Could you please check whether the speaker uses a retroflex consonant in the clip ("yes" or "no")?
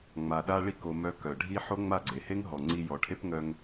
yes